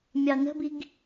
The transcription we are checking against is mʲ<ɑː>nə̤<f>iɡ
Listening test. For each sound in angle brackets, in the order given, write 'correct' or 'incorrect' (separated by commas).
incorrect, incorrect